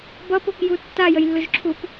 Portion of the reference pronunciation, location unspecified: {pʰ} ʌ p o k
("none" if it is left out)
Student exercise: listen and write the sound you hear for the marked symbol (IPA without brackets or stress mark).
b